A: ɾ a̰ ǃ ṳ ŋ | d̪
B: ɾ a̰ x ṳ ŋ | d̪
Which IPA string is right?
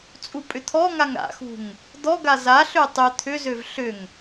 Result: B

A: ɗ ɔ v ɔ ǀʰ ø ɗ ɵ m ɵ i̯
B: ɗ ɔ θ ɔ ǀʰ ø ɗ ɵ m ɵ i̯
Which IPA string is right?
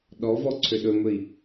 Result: A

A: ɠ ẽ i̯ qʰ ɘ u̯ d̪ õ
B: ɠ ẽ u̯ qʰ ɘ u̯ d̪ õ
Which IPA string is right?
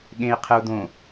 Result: A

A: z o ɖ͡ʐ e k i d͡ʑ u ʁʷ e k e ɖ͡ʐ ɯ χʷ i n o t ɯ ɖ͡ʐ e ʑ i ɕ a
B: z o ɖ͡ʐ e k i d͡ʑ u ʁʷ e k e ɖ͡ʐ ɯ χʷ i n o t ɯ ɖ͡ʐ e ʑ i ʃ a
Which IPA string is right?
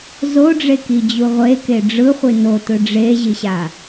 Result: A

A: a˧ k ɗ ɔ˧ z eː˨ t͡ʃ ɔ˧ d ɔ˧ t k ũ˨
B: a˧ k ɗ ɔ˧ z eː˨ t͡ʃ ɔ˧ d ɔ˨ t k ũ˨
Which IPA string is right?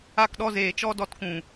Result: A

